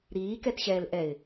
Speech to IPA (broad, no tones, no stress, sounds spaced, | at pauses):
ɾ iː k ɛ t ɕ ɛː l ʔ ɛ ɪ̯